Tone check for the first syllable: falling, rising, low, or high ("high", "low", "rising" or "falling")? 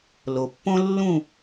low